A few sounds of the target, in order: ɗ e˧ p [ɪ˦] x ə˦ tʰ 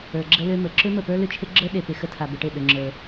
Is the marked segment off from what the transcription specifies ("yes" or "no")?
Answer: yes